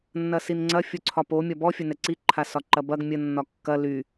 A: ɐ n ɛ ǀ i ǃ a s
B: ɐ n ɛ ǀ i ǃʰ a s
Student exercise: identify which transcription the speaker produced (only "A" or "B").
B